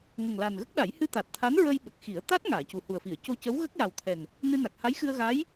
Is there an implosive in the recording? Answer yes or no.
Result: yes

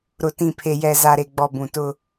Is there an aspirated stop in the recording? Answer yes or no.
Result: yes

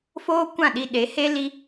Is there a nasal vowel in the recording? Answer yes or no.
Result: yes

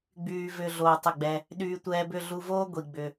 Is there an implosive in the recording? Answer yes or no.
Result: yes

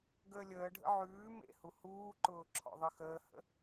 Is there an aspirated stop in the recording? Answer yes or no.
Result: yes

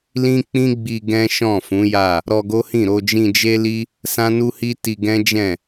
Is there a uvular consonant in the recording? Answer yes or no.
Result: no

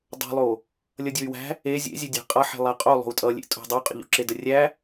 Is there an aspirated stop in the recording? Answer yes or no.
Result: no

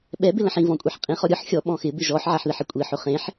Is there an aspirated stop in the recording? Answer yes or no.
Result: no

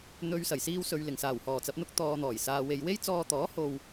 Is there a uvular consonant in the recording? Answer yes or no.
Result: no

